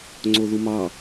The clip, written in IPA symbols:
ŋ͡ǀoðumɑ

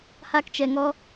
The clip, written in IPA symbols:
ha˦kt͡ʃɛ˧ŋɔ˦

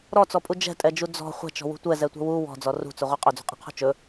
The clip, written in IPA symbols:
ɾɔt͡sɔpʼu d͡ʒɛ̤tʼɛd͡ʒu d͡zɔ̤ χʷɛ̤t͡ʃɔ̤wṳ tʷɛzɛtʷɛ̤ wu wɔ̤d͡zɔ rṳt͡sɵʁʷɛ qʼɵd͡zṳqʼɛ̤qʰṳ t͡ʃɵ

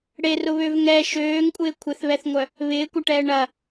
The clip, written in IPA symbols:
ɽerʊβøv ŋɛ ʃøːŋkʷʼɪː kʷʰɪθβɛθŋʷœ | βɪːkʷɐʈɛː ɳɐ

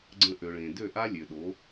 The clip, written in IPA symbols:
ɡ͡ǀə̃˧ʔø˨ɭẽ˨ dø˦˨ʔa˦ lʲø˨ɗo˨˦

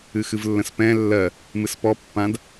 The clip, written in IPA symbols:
ɨxɨvlːə̃spɛ̃ lːɜ | mɨspɔ pːãd

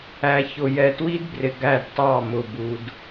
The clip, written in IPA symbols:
æ˨çʊ˨ jɛ˨twi˦dbrɪ˨ ɡæ˦˨dtˤɑ˦˨mʊ˨ bu˦d

